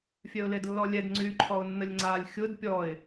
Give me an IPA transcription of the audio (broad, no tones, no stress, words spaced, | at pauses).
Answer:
fʲœʊ̯ledlːɔlʲɛd ŋ͡ǀyːǃʰɔʊ̯nːəlʲŋ͡ǀalʲ xʲʊd pʲɔɪ̯